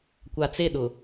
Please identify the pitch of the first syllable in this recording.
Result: low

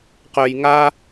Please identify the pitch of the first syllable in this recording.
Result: low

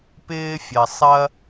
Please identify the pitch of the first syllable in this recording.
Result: high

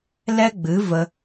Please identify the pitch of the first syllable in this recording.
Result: high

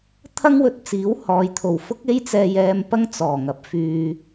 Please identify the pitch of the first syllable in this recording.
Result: high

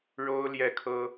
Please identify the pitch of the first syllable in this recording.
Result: high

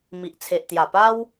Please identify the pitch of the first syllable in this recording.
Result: low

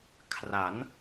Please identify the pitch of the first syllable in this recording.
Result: rising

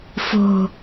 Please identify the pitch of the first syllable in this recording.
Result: low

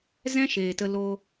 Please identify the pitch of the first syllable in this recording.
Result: high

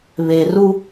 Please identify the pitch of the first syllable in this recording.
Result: low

